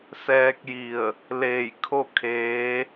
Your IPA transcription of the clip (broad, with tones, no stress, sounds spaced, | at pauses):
s ɛː˧ k̚ j i˧˩ ə̯ | l eː˧˩ j kʰ o˥˨ kʰ eː˧˥